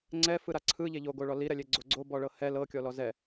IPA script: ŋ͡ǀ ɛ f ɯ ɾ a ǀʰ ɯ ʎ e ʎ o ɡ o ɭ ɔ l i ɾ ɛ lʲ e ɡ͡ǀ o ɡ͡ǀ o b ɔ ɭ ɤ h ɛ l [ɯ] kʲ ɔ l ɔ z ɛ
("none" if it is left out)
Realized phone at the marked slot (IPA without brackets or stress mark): ɤ